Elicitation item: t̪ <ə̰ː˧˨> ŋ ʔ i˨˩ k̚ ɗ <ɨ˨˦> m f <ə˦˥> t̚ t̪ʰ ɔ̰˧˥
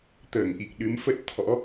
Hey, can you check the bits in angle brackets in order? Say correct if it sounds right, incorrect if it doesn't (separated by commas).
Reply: incorrect, correct, correct